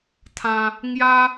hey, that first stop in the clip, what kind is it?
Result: aspirated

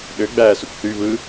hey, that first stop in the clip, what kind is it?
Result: implosive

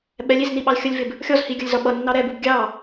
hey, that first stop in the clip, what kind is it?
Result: implosive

